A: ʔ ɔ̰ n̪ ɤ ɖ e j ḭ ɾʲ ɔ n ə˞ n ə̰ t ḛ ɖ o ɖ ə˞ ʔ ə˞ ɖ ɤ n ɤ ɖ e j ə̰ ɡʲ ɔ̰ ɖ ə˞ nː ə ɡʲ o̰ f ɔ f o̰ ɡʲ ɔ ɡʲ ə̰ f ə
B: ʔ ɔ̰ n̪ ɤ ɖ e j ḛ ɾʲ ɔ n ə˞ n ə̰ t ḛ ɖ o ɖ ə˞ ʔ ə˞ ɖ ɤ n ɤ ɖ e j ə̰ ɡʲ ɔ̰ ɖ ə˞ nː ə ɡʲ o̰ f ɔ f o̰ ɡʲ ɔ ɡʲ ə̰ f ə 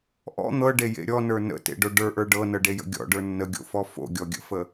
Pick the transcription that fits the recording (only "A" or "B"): B